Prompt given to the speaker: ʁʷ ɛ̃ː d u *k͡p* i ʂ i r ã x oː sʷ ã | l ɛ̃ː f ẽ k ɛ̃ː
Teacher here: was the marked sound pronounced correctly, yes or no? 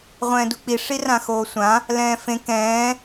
yes